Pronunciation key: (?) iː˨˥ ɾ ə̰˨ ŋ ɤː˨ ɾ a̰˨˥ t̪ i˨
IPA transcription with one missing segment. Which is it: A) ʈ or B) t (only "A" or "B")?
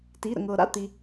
B